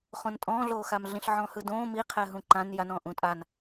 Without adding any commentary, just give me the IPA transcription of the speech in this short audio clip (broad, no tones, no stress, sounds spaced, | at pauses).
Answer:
χ õ n tʼ ɔ̃ː ɮ oː x a m ɮ ĩ ɬ ʕ ɔ̃ː h ɯ d õː m i qʰ ɛ ɦ ũ ǃ ã n j a n ɔ̃ː ʔ ũ tʼ a n